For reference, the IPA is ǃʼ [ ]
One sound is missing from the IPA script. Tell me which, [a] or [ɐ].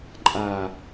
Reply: a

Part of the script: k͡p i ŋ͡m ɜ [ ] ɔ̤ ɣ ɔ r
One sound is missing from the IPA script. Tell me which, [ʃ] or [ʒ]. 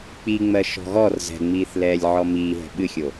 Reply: ʃ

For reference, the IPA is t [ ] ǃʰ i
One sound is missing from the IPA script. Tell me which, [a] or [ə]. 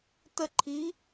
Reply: ə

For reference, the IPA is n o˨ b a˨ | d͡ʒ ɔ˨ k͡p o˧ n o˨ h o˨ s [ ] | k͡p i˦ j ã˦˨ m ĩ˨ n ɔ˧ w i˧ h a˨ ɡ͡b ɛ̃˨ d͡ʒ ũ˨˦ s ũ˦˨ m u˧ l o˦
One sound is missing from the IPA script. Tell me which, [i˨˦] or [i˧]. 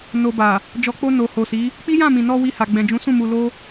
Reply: i˨˦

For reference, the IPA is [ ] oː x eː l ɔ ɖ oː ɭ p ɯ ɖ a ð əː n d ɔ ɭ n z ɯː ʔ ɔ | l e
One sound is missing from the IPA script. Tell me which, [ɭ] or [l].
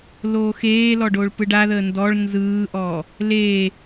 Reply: l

